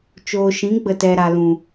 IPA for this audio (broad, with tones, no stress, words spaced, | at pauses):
t͡ʃoː˨ʃĩ˨˦ ɡ͡bə˨tɛ˨ ɾa˨lũ˨